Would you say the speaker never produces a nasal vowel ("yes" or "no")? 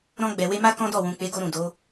no